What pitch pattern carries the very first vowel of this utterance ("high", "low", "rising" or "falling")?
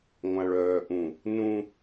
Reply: high